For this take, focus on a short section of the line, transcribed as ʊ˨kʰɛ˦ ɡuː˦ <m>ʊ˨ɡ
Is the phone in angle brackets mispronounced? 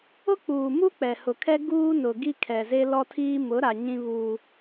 yes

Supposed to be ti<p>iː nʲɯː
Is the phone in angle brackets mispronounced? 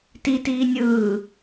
yes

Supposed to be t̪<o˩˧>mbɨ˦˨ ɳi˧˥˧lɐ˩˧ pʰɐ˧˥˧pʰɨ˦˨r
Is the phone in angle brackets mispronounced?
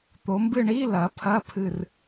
no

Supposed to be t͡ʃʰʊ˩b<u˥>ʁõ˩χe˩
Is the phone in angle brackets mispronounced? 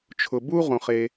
no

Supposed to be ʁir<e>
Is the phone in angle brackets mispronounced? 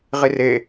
no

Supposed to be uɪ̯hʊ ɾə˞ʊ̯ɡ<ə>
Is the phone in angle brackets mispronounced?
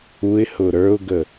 no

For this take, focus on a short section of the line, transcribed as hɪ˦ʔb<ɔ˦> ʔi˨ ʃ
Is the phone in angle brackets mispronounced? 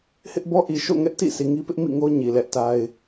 no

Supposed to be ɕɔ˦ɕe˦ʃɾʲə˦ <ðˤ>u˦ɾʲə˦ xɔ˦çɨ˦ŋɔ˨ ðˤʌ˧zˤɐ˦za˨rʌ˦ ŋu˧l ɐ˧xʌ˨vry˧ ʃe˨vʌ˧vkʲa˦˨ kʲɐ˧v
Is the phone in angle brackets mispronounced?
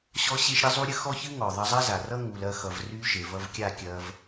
yes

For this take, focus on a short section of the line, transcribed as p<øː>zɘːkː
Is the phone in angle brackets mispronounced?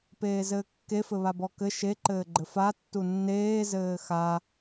yes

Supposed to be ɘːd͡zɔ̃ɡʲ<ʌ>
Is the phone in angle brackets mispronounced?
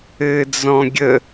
yes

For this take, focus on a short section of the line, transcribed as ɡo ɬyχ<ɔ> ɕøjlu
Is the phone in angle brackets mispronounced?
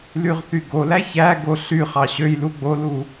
yes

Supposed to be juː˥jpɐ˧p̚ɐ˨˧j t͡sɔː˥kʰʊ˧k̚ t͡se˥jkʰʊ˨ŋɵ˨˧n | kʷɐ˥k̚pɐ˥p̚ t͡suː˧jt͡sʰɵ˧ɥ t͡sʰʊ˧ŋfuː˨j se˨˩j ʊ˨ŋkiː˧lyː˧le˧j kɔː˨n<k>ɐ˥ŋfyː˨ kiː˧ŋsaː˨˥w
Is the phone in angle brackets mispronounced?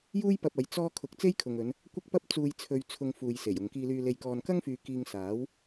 no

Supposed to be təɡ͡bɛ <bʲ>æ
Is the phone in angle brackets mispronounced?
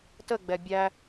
no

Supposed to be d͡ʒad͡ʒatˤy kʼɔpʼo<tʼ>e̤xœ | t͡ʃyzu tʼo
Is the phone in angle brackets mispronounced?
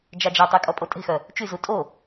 no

